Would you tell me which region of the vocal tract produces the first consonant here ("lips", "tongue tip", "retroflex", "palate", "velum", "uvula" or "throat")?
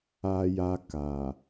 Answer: palate